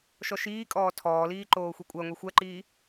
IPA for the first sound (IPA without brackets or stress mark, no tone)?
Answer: ʃ